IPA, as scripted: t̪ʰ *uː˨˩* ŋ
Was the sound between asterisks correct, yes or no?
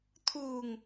yes